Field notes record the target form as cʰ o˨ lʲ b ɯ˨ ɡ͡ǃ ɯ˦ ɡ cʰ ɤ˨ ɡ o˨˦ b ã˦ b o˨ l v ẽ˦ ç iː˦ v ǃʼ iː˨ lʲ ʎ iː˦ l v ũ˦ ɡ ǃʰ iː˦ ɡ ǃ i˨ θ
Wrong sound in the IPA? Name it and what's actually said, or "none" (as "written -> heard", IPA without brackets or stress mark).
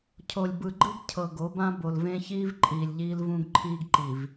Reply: θ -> v